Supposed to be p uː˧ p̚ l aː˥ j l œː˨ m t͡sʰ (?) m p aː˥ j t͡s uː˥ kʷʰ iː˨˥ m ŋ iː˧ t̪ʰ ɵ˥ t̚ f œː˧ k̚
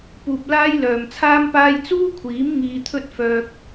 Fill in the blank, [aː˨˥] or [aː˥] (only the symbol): aː˥